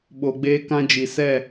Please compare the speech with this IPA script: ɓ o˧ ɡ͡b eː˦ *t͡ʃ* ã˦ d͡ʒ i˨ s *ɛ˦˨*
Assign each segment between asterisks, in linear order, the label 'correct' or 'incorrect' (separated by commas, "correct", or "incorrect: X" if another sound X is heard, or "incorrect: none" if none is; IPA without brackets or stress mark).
incorrect: k, correct